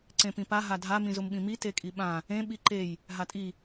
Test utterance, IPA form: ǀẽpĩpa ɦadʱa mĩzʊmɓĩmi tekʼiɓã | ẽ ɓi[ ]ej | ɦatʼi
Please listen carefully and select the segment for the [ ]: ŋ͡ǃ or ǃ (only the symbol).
ǃ